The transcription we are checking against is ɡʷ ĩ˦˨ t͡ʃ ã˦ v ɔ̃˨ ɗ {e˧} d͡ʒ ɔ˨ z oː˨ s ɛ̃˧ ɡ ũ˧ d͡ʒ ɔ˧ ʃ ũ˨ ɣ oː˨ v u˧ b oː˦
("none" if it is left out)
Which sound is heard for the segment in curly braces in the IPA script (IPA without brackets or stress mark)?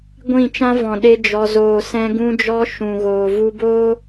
e˧